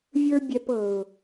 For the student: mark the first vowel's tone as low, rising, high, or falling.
high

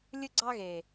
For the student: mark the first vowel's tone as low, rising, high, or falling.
high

